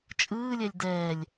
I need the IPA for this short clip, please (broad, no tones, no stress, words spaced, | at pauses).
t͡ʃʼɯːlʲɛlʲ dɛːlʲ